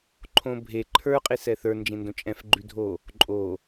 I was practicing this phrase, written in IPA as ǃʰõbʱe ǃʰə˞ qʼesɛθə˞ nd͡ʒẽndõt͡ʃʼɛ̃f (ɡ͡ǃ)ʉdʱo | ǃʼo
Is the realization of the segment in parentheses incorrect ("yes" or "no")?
no